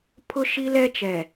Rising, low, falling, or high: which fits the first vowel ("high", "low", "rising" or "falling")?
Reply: high